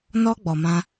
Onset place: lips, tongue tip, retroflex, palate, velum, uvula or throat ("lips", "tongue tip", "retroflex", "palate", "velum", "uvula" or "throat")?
tongue tip